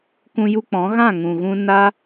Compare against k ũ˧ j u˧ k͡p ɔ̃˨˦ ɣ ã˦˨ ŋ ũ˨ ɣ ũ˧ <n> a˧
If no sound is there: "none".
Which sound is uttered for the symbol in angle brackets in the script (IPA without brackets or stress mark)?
n